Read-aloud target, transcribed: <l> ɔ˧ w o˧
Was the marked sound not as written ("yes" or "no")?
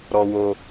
yes